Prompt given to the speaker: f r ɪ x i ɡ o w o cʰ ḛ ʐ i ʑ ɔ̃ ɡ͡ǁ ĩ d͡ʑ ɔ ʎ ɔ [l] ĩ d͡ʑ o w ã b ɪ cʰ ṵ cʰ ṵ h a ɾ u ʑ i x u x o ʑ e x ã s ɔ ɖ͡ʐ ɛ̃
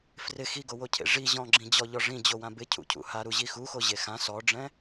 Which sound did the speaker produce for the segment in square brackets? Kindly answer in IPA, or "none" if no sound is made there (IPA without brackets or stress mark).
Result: ʐ